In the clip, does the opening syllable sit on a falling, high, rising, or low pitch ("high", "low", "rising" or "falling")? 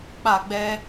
falling